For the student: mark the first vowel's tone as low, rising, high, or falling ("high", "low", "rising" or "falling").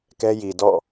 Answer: high